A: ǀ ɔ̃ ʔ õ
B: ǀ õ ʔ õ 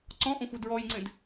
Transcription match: A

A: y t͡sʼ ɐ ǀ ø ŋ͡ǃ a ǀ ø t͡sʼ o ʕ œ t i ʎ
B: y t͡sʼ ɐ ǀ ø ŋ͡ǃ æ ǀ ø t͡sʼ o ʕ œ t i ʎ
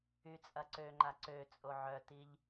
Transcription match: A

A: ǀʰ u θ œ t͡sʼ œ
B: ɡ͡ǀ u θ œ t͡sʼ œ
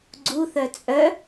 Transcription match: B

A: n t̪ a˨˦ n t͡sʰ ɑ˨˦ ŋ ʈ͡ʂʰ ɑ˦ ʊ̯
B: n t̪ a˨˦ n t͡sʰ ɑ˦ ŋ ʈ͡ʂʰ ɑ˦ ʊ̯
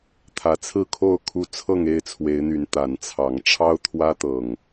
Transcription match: A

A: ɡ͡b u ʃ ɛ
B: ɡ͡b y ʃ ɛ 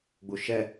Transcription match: A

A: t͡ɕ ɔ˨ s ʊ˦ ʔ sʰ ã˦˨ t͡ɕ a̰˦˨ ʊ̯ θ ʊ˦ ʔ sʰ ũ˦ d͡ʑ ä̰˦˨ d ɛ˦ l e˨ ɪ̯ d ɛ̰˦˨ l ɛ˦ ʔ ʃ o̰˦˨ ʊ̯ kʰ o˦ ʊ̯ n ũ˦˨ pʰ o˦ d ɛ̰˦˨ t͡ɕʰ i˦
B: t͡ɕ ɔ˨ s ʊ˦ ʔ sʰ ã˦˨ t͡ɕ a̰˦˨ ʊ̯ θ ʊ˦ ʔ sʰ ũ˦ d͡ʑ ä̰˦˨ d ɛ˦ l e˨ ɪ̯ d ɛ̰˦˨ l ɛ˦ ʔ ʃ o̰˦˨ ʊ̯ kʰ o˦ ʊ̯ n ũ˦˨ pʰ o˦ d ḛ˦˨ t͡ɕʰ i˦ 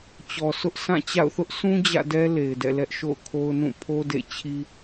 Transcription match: B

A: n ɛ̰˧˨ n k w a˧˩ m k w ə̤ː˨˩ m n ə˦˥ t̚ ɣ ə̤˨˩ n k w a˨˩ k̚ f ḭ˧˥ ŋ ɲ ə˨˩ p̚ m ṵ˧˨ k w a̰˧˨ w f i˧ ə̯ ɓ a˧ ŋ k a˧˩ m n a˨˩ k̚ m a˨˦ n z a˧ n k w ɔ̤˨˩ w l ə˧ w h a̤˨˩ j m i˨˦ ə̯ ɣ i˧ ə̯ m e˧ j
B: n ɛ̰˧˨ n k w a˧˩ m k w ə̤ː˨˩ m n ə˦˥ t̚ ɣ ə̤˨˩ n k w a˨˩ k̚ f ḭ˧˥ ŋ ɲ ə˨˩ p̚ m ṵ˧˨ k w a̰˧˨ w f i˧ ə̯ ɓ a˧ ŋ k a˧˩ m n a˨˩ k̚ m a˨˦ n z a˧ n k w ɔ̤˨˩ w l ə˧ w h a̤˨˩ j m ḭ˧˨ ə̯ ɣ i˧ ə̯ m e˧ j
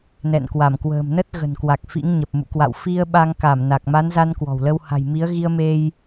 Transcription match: A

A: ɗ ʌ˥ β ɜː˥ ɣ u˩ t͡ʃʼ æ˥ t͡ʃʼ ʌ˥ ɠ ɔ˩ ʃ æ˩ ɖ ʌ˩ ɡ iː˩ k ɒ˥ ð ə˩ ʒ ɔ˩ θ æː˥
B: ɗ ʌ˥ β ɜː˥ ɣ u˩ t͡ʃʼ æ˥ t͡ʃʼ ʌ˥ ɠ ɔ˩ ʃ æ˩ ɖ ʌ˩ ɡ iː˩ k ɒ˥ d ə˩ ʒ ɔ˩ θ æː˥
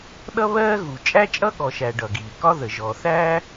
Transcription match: A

